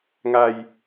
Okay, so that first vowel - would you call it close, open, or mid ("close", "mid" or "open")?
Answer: open